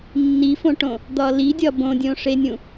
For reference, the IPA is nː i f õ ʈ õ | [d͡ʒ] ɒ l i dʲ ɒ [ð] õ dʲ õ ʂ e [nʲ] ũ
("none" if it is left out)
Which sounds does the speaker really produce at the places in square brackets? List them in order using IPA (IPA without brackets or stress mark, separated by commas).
d̪, b, nʲ